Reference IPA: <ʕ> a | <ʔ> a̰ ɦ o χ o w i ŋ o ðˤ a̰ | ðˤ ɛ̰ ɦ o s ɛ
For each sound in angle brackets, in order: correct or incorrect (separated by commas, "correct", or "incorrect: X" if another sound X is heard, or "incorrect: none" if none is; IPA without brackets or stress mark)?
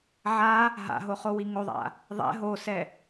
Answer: correct, incorrect: ɦ